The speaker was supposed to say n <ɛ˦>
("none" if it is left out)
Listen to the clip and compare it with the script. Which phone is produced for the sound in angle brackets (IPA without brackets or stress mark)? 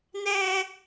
ɛ˦